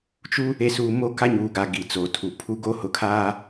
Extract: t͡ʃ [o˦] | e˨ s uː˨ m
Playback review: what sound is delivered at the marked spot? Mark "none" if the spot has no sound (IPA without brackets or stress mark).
u˦